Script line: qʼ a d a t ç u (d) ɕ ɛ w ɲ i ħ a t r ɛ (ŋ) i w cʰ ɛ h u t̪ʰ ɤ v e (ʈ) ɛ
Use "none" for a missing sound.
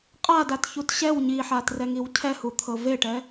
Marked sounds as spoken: t, ŋ, ʈ

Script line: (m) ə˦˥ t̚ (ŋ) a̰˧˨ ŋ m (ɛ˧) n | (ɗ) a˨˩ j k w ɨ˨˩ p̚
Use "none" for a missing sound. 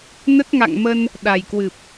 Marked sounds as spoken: n, ŋ, ə˧, ɗ

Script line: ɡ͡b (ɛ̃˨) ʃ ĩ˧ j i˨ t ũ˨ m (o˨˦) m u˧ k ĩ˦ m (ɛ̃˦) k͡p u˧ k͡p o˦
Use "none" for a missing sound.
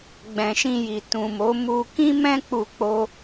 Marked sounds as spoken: ɛ̃˨, o˨˦, ɛ̃˦

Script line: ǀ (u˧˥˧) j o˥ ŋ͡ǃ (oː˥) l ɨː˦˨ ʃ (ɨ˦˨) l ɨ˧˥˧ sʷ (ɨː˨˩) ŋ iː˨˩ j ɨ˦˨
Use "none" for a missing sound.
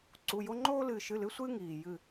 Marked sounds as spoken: u˧˥˧, oː˥, ɨ˧˥˧, ɨː˥

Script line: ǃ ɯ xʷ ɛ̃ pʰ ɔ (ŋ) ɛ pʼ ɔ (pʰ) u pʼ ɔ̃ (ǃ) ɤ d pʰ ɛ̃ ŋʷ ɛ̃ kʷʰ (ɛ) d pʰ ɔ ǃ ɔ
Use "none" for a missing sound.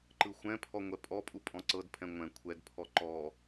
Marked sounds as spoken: ŋʷ, pʼ, ǀ, ɛ

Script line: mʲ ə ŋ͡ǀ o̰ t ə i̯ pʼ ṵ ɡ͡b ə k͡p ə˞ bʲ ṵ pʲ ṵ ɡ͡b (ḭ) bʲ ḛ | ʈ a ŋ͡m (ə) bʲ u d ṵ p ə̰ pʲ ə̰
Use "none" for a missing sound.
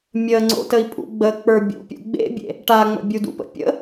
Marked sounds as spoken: ḛ, ə̰

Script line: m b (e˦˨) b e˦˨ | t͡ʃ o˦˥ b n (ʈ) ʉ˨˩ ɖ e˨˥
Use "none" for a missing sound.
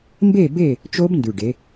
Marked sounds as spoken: e˦˨, d

